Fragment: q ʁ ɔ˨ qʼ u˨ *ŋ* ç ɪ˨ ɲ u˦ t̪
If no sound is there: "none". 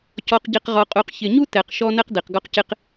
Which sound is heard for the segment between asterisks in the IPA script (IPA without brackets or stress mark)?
q